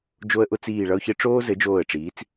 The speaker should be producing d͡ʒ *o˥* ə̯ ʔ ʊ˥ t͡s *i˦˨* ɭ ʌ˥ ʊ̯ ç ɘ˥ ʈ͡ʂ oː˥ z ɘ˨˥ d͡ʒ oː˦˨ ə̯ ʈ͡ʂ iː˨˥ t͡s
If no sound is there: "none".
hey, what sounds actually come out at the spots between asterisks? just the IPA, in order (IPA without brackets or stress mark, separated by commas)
o˥, iː˦˨